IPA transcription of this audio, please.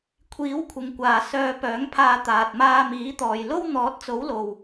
kʷʰ iː˨˥ w kʷʰ ɪ˨˧ ŋ kʷ aː˨ s œː˧ p œː˨˥ ŋ pʰ aː˧ t̪ aː˨ t̚ m aː˧ m iː˨˥ t̪ ɔː˨ j l o˥ w n̪ ɔː˨˥ t̚ t͡s o˨˥ w l o˨ w

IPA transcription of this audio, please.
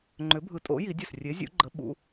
ŋ͡ǃ ʏ˨˥ bʱ ɯ˨˥ tʼ o̰˨˥ j i˨˥ dʲ ɐ˥˩ s rʲ e˨˥ zʲ ṵ˨˥ ɡ͡ǃ ə˨˥ ɓ ṵ˨˥

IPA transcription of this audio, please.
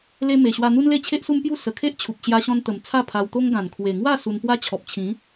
l e˧ m e˨˩ ɕ w a˧ n̪ u˦ n l e˥˧ t͡ɕʰ e˦ ʔ s u˦ m p j u˥˧ s ə˨˩ kʰ e˦ ʔ t͡ɕʰ u˨ p̚ ɕ j a˧ ɕ ɔ̃˧ n t̪ ə˨˩ m t͡sʰ a˥˧ pʰ a˧ w t̪ o˦ ŋ ɡ ã˨˩ n kʰ w e˨˩ ŋ w a˥˧ s u˧ n p w a˦ t͡ɕʰ ɔ˨ p̚ t͡ɕʰ ĩ˨˦

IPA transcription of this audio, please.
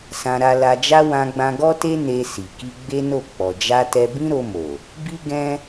s ã˧ ɾ a˧ l a˧ d͡ʒ a˦ w ã˧ ɡ͡b ã˧ ɡ ɔ˦ t e˦ n e˧ s i˨ k i˧ ɡ͡b e˦ n o˦˨ k͡p ɔ˨ d͡ʒ a˧ t ɛ˧ b ĩ˦ ɾ o˧ m o˨ | b i˦ ɡ ɛ̃˦

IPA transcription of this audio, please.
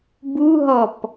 b u ɦ ɔ p

